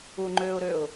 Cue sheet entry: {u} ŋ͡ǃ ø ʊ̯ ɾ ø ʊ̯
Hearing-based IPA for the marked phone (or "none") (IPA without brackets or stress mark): u